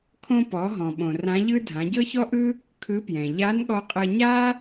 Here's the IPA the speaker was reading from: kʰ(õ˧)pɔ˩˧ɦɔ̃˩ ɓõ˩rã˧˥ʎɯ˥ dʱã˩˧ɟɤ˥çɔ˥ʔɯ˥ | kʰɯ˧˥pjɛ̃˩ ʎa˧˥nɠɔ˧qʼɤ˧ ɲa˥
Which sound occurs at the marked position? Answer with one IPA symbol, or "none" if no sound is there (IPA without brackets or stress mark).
õ˧